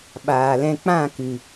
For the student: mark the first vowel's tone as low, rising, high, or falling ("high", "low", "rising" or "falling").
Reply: low